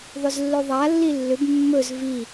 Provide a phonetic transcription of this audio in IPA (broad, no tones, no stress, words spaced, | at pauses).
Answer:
ðˤʏzlːɵðˤa lːilːʏb mːɵz vi